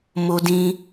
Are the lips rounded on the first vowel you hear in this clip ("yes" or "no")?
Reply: yes